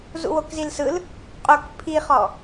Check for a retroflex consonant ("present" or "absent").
absent